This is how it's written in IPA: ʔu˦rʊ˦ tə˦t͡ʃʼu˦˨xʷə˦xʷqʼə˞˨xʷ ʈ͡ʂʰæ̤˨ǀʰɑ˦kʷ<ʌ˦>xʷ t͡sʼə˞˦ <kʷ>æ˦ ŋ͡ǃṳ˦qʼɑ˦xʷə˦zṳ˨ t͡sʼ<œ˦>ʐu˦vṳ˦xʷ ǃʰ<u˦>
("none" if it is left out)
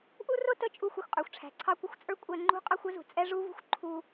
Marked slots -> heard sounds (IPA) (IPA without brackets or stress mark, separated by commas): ʌ˦, kʷʼ, ɛ˦, u˦